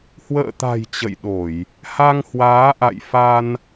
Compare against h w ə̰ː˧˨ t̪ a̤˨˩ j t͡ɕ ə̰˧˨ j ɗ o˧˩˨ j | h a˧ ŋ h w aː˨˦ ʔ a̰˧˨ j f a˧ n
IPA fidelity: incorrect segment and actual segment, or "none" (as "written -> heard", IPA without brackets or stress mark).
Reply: none